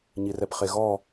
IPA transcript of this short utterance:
ɲ i r ɛ p χ e ɣ ɔ

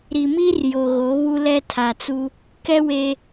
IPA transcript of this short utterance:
ɾ i˨ m i˦ r j o˨ ɣ o˨˦ β u˦ l ɛ˦ tʰ a˨ t͡s u˦ | k ɛ˦ w e˨

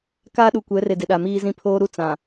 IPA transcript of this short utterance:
k aː˦ ɗ u˨ kʷ ɛ˨˦ r e˨ d ɪ˨ ɗ a˨ m iː˦ z ĩ˦ pʰ oː˦ ɾ u˦ t͡s ã˨

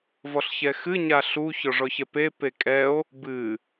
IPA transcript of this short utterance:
v ɔ ɬ ç ɛ x ɨ ɲ a ɬ u ç ɔ ʐ ɔ ç ɛ p e p e kʼ ɛ o̯ | b ɨ

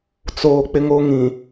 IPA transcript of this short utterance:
t͡s oː˦ k͡p ɪ˦ ŋ o˦ ŋ ĩ˨

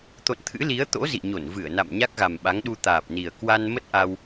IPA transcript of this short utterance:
t̪ o̰˧˨ n t̪ʰ ɨ̰˧˥ l i˨˦ ə̯ t̪ o̰˧˥ z ḭ˧˨ ɲ o˧˩ n v ɨ˧˩ ə̯ n a̰˧˨ m ɲ a˦˥ k̚ ɣ a˨˩ m ɓ a˨˦ ŋ ɗ u˧ t̪ aː˨˩ p̚ n i˨˩ ə̯ k w a˧ n m ə˦˥ t̚ ʔ a˧ w

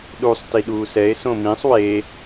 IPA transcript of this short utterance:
ɗ u sˤ t i ɗ uː s ɛ e̯ s õ m ĩ sˤ w e

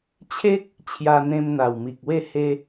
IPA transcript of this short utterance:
t͡ɕʰ e˦ k̚ | t͡ɕʰ j a˧ n̪ ẽ˧ m n̪ a˨˩ w m i˨ k̚ w e˥˧ h e˦

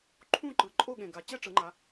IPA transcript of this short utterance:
ǃʰ ũ˥˨ ǃ ɯ˨˩ ǃʼ o˥˨ ɠ ẽ˨˩ ɡ a˩˧ t͡ɕ ɛ˥˨ ʈ͡ʂ ɯ˩˧ ŋ͡ǃ a˩˧

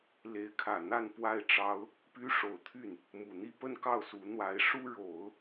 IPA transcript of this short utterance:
l e˧˥ ɪ̯ kʰ ä˨˩ n̪ a˥˧ n p w a˥˩ ɪ̯ ʈ͡ʂ ɑ˥ ʊ̯ | p y˥ ʂ o˨˩ ʊ̯ t̪ʰ y˥˩ n | m u˨˩ n̪ i˥˧ p ə˥˧ n k ɑ˥˩ ʊ̯ s u˧˥ n̪ w a˧˥ ɪ̯ ʂ u˥ ɻ o˨˩˦ ʊ̯

